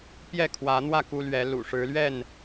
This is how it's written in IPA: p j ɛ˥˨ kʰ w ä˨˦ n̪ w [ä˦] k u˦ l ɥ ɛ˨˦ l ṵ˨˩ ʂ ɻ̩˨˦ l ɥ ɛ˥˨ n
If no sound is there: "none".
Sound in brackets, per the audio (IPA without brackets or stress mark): ä˥˨